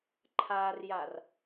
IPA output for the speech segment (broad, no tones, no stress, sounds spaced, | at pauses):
ǃʰ a r j a r